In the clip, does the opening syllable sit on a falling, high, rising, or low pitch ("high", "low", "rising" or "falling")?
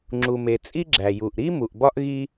low